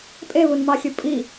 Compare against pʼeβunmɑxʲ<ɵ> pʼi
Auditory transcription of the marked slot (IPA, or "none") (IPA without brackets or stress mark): ʊ